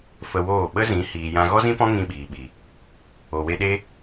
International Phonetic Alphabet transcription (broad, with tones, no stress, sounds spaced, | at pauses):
f ə˧ w oː˦˨ ɓ ə˦ z ĩ˨˦ h iː˨ j ã˧ ɣ ɔ˦ z ĩ˦ p ɔ̃˦ ŋ ĩ˦ ɓ iː˨ ɓ i˨ | o˨ w e˧ ɗ e˦